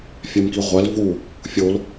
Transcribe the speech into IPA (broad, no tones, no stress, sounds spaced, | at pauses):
fʲ æ m k i ʁʷ æ l v u | fʲ o l